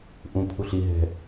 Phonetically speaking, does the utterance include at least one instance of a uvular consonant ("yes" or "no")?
no